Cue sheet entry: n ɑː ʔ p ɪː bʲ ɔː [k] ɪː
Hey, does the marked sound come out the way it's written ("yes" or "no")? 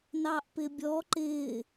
no